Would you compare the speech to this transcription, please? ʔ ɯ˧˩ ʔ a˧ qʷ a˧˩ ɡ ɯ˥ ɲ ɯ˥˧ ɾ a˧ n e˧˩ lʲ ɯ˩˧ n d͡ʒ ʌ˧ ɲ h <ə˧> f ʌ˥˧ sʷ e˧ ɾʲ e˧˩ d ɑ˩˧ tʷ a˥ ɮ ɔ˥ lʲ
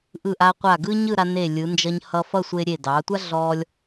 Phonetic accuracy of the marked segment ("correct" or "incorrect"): incorrect